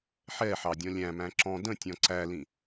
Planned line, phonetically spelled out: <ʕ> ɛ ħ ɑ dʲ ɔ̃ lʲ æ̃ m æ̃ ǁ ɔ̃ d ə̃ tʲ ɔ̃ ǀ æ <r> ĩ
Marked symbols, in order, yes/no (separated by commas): no, no